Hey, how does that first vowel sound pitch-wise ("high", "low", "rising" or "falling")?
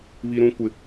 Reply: high